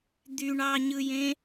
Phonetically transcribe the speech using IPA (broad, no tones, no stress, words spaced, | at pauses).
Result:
d̪yɳɑɲɯjẽ